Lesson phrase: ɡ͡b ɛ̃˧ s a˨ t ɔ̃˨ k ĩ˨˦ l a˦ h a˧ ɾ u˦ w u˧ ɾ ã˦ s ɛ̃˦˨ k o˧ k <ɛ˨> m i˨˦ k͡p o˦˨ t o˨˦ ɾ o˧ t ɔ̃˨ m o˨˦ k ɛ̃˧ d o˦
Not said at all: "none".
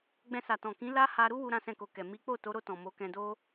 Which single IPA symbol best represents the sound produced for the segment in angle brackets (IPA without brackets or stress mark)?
ɛ˨